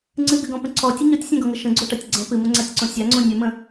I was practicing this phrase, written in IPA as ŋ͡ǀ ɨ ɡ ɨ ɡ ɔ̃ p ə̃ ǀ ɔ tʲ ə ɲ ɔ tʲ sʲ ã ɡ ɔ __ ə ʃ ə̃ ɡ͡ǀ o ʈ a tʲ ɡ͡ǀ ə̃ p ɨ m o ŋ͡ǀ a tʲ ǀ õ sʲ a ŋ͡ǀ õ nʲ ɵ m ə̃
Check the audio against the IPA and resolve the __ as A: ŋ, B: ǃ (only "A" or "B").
A